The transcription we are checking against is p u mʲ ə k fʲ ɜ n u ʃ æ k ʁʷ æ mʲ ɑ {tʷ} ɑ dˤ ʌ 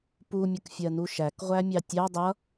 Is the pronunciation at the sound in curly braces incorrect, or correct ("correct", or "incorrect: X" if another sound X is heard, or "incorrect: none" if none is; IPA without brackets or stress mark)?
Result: incorrect: tʲ